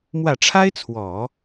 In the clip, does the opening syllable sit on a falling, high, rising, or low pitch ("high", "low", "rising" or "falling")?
low